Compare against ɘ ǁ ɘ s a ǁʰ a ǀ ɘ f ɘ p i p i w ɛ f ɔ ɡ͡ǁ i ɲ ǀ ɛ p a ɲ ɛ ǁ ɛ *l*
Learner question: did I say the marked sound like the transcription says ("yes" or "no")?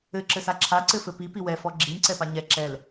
yes